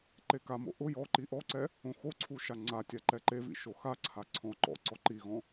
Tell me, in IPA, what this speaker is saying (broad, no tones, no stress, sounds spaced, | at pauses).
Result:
ǃ e k a m o̰ ʔ ʊ j ɔ ǃ i ʔ ɔ ǀ ɛ | õ x o ǀʰ u ʃ a ŋ͡ǀ a tʲ a ǃ ɛ ǃ e v ḭ ʃ o x a ǀʰ a ǀʰ ɔ̃ ǃ ɔ̰ ǀ ɔ ǃ i ɣ ɔ̃